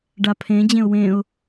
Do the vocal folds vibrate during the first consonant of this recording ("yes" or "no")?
yes